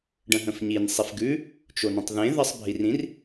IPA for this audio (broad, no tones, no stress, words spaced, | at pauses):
ɖə̃ɦə̃fɲin sˤifɡʉ | t͡ʃonẽtˤðẽ ðɜsˤbʱirĩr